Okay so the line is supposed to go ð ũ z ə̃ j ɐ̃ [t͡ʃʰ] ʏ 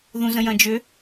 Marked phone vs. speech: incorrect: d͡ʒ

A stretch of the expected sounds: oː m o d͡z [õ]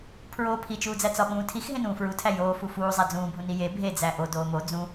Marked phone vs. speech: incorrect: ũ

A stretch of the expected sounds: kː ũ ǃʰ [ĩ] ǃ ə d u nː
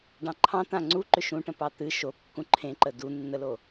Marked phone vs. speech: incorrect: ẽ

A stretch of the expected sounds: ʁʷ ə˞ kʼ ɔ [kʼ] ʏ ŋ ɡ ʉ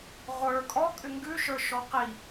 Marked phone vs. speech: correct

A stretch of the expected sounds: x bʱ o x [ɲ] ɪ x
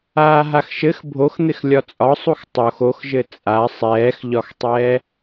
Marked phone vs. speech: incorrect: n̪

